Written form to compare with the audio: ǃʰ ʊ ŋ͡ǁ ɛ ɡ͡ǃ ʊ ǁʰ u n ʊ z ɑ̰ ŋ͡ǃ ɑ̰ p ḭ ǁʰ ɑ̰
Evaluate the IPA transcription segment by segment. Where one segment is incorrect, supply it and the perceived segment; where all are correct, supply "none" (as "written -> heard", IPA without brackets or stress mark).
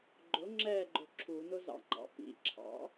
ǃʰ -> ɡ͡ǃ